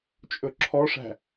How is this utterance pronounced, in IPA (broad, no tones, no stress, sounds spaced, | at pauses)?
t͡ʃʼ ɵ ǁʰ ɔ ʂ æ̤